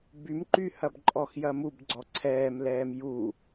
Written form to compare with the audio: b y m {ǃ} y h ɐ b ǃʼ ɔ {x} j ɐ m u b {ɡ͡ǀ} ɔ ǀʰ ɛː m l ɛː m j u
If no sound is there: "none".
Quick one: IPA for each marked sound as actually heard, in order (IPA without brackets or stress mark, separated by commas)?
ǃ, x, ɡ͡ǀ